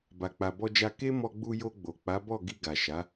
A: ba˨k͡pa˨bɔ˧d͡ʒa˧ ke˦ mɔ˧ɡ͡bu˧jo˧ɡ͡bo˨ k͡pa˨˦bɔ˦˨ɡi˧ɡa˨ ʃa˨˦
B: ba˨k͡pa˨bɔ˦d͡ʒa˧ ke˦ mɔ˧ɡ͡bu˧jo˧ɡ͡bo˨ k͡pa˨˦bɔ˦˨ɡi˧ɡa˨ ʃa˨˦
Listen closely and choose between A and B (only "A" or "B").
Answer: A